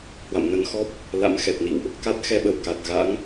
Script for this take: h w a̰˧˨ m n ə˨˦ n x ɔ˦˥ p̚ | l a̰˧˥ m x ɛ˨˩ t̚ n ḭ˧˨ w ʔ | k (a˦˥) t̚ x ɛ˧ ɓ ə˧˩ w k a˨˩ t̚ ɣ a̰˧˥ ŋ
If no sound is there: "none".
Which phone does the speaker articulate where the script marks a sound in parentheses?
a˦˥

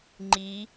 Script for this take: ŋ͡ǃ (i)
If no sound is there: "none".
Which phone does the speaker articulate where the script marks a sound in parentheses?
i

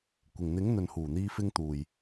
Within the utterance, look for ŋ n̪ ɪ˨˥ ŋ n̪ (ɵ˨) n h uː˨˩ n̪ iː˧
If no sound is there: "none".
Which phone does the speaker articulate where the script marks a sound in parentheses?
ɵ˨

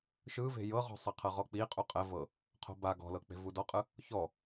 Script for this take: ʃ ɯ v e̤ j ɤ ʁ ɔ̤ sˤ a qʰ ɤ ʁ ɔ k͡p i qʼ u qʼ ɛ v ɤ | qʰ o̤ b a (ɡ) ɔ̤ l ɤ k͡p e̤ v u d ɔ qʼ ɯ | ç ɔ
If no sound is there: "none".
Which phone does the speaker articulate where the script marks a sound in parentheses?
ɡ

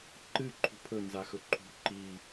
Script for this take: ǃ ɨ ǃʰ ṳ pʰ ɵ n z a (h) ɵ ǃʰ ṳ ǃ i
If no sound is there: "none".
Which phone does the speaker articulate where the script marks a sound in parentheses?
x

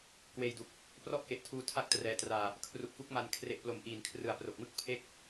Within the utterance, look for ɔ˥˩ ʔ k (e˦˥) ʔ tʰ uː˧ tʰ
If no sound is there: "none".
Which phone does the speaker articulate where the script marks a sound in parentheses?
e˨˩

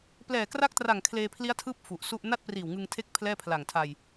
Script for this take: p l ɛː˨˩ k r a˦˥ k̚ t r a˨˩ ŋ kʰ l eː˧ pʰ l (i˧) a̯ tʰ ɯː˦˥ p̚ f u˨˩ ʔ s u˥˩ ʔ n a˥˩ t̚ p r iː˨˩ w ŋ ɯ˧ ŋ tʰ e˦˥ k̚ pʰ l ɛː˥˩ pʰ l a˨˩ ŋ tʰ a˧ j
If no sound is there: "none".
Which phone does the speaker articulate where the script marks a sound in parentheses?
i˦˥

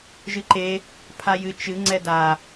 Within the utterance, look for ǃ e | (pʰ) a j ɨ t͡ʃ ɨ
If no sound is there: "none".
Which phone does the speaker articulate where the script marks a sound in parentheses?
pʰ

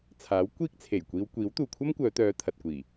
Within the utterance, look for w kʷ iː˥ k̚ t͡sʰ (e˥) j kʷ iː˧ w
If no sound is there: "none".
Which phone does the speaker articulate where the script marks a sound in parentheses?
e˨˩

